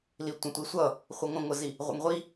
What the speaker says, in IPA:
l i tʷ ə̃ tʷ i sʷ ʌ | χʷ ə ŋʷ ə̃ ŋʷ ə z i | ʁʷ ə̰ ŋ ʁʷ i

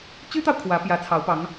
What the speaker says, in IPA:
t͡ɕ y˥ t̪ ɑ˨ ʊ̯ kʰ w ä˧˥ p j ä˧˥ t͡sʰ ɑ˧˥ ʊ̯ p ɑ˧˥ ŋ

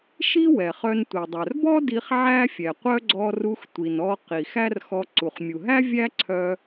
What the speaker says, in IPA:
ʃ i˥ w ɛ˩ χ œ˧ n tʷ i˩ dˤ œ˩ r b ɔ˥ d i˧ χ ʕ æ˥ fʲ ɛ˩ qʷ œ˥ ɡ͡ǀ ɔ˧ r u˧ x tʷ i˩ n ɔ˧ q i˩ x æ˥ r x ɔ˧ ǀ u˩ χ mʲ u˩ ɦ æ˥ vʲ æ˥ ǀʰ œ˧

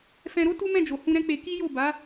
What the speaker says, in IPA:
f ɛ̃˧ ɾ o˦ t u˦ m ɛ̃˦˨ d͡ʒ o˨ h ũ˧ ɾ ɛ̃˦ k͡p e˧ k i˦ j o˦˨ b a˨˦

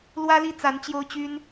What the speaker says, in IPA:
l w ä˥ l i˥˩ t͡s a˧˥ n t͡ɕ j o˥ ʊ̯ t͡ɕ y˥ n

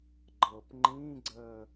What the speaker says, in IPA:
ɡ͡ǃ ɤ p ŋ͡ǃ ĩː ɡ͡ǀ əː

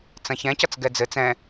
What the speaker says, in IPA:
t͡s ɐ̃ ç ɛ̃ c ʌ t͡s ɡ ɛ d͡z ɘ t͡s ɛ̃

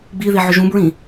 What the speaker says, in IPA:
ɡ͡b i ð i ʕ ʏ ʒ ũ b ɹ ĩ

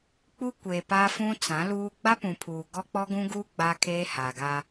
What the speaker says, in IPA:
k͡p u˦ kʷ eː˨ p a˦ f ũ˦ t͡s ã˨˦ l uː˦ ɡ͡b a˦ p ũ˨ pʰ uː˨ ɡ ɔ˦ k͡p ɔ˦ ɡ ũ˦ ɡ uː˦ ɡ͡b a˦ kʰ eː˦ h aː˨ ɡ aː˦

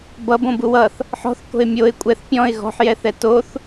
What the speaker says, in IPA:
b ʌ b õ b u w ʌ θ | ħ ɔ̤ θ k o̤ ɪ̯ mʲ o ɪ̯ kʷʼ ɛ θ pʲ ɔ̃ ɪ̯ ɣ ɔ̤ ħ j ɛ θ ɛ t o θ

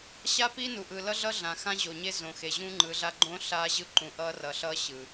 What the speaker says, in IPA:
ɕ a˦ p i˦ n u˨ ʔ ɯ˨ l ʌ˦ ɮ ʌ˦ ɮ ã˨ x ã˦ ʑ o˨ ɲ e˦ z õ˨ x e˨ ʑ ũ˦ ŋ͡ǃ ɯ˨˦ ɮ a˦ ɡ͡ǃ õ˦ ɬ a˦ ʑ ɯ˦ ǃ ũ˨ ʔ ʌ˦ r ʌ˨ ɬ ʌ˦ ɕ ɯ˨

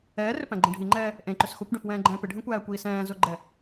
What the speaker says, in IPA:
ɛː r ʏ p æ̃ ɡ͡ǃ ẽ ɖʱ i ŋ͡ǃ ɛː | ʔ ẽ ǃ ʏ s x o kʷ ɖ ẽ f w ɛ̃ː ɡ͡ǃ ɛ̃ː p ɪ ɖʱ ẽ kʷ æː kʷ iː s ɛ̃ː z o ɡ͡ǃ ɛ

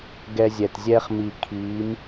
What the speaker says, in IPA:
ɡ ɛ˧ zʲ ɛ˨ t zʲ ɛː˦ χ m i˨ kʰ iː˨˦ m

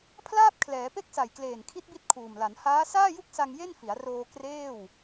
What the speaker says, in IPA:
pʰ l aː˥˩ p̚ kʰ l ɛː˩˦ p e˥˩ k̚ s a˨˩ j k l eː˨˩ n kʰ i˦˥ t̚ b i˦˥ t̚ kʰ uː˨˩ m l a˩˦ n h aː˦˥ s aː˥˩ j u˥˩ k̚ s a˧ ŋ j e˥˩ n f i˩˦ a̯ r oː˧ k r eː˥˩ w

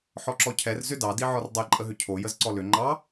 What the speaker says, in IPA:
ħ ɔ ǁ ɔ cʰ ɛ r z ʏ d ɑ d i ʕ ɔ r dˤ ɛ ǃʼ ə ɦ ʏ cʰ o j ə z ǀ ɔ l ʏ ŋ͡ǃ ɑ

